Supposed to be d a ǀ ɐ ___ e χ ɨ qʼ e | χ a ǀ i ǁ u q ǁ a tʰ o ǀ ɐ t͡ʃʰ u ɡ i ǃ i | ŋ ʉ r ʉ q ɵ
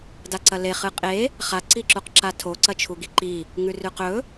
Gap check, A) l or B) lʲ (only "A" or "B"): A